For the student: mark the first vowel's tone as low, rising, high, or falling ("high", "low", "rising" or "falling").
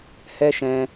high